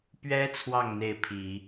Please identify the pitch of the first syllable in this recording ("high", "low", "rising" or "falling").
high